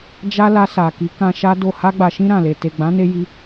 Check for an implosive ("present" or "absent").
absent